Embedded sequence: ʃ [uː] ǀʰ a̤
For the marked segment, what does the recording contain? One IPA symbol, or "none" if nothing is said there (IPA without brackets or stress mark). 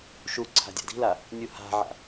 u